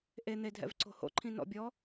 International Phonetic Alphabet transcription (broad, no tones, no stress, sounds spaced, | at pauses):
ʔ e n̪ e dʱ ɛ̰ v ǀ o̤ h o̰ ǃʰ ĩ n ɔ̰ bʲ ɔ